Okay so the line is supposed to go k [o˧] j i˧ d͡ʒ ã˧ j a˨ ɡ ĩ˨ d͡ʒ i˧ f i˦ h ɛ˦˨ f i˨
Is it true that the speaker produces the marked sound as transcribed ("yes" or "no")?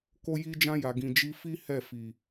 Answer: yes